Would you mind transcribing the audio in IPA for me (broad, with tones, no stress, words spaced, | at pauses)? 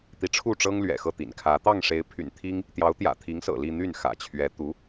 t̪i˧˥ʈ͡ʂʰu˥˩ʈ͡ʂɤ˥ŋ lɥɛ̰˨˩xɤ˥˩t̪ḭ˨˩nkʰä˧˥ t̪ɑ˥˩ŋʂe˧˥ɪ̯pʰy̰˨˩n t̪ʰi˥ŋ | t̪jɑ˧˥ʊ̯t̪jä̰˨˩t̪ʰi˧˥ŋ sɤ̰˨˩li˥˧ n̪y˥˩nxä̰˨˩ t͡ɕʰɥɛ˧˥ t̪u˧˥